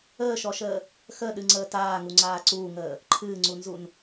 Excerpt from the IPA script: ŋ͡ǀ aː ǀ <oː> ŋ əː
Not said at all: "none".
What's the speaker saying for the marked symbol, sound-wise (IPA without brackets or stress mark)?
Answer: uː